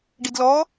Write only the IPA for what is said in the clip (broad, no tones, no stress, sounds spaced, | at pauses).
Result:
ɖ i d l ɔ